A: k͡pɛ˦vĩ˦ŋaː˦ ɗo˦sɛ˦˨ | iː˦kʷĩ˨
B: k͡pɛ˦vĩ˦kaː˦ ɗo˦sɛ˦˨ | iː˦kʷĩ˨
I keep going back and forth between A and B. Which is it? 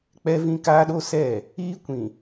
B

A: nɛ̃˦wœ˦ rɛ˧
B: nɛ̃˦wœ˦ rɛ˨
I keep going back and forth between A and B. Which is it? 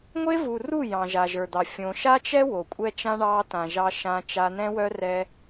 A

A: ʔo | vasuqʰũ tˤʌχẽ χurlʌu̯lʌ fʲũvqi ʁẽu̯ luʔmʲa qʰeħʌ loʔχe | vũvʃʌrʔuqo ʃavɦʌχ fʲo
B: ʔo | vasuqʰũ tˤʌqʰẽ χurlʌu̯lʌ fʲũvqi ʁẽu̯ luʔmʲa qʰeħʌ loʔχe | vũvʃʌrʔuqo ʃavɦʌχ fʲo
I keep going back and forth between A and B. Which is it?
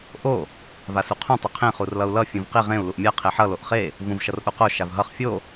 B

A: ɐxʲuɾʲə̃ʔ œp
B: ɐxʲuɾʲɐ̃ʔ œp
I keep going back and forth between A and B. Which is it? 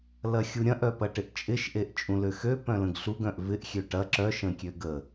B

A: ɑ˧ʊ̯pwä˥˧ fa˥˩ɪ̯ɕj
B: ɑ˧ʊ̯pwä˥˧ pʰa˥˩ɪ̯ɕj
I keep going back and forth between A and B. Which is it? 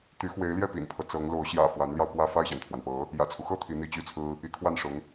A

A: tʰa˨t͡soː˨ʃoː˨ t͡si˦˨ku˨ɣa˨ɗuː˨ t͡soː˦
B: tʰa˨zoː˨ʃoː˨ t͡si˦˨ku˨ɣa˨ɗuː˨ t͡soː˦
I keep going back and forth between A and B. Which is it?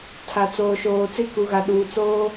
A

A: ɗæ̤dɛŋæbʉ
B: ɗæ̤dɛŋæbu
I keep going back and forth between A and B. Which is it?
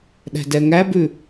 A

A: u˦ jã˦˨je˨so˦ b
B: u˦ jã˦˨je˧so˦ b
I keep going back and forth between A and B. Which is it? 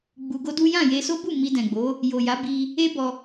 B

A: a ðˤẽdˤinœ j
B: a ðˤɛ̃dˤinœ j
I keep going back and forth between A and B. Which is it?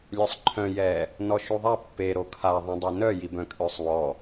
A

